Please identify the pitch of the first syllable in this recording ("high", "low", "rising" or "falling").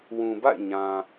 low